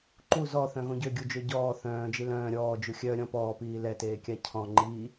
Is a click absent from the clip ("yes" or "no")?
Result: no